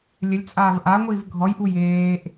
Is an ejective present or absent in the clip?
present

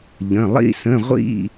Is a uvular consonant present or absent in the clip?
present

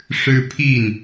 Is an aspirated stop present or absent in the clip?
present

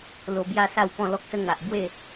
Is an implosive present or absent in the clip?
absent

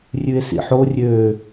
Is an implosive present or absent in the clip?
absent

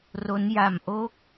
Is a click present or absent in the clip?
absent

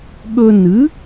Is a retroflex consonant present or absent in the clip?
absent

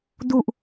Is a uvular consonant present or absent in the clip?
absent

